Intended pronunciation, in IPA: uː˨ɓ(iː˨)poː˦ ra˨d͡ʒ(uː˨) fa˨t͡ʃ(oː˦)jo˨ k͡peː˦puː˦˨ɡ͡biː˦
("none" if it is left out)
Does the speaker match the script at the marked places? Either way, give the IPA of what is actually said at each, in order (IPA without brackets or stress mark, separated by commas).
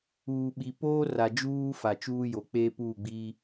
i˨, uː˦, uː˦